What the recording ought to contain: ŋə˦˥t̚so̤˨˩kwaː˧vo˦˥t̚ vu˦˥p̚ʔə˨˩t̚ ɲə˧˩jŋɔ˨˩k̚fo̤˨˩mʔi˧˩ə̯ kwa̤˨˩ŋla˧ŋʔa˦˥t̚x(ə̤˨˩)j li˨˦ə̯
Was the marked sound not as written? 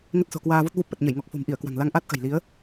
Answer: no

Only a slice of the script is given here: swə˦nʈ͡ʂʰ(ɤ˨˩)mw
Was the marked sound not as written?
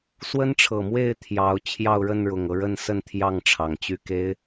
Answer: no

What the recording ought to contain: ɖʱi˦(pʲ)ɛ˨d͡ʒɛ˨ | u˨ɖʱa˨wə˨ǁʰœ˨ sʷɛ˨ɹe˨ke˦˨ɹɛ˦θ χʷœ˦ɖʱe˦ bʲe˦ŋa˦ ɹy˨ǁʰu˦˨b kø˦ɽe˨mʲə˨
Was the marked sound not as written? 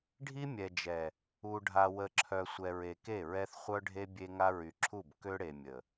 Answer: yes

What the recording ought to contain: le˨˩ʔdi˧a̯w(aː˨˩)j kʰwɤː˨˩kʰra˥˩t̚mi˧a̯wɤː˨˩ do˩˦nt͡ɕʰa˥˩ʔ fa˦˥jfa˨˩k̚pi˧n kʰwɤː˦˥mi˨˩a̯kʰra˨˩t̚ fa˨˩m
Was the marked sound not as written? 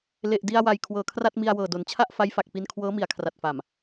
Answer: yes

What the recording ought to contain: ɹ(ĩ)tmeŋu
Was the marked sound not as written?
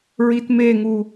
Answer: yes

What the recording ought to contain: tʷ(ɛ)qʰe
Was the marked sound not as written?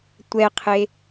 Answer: no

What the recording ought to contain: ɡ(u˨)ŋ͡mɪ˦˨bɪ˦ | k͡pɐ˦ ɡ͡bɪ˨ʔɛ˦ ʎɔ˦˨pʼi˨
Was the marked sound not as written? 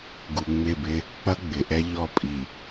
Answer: no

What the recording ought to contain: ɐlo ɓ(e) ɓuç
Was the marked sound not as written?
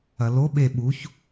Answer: no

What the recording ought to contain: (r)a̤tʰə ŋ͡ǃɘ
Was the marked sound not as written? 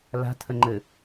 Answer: yes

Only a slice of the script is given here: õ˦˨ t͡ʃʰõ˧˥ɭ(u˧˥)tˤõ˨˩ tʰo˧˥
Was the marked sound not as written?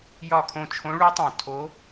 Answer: no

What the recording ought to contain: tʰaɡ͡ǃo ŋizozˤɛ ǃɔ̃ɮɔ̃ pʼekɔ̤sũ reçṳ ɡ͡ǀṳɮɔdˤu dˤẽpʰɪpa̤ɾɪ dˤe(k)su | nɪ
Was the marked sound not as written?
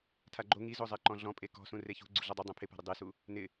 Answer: yes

